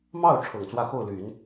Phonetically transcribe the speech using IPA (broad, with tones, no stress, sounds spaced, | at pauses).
m ɑ˥˩ ʊ̯ ʈ͡ʂʰ ɤ˨˩ ŋ t͡s w ä˥˧ x o˥˩ ʊ̯ l y˨˩˦ n